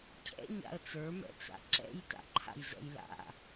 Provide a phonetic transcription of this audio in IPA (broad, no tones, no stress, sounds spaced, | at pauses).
cʰ ɛ̰ ɲ a̰ ə̯ t͡s ə˞ m ɛ̰ t͡s a̰ ǁ ɛ̰ j t a̰ ǃʰ a̰ j z ɛ̰ j l a̰